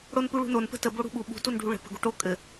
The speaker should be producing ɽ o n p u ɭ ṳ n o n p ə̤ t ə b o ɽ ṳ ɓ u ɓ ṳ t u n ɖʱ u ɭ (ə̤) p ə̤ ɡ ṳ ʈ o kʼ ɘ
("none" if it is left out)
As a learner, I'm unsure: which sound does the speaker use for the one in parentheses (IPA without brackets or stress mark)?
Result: ə̤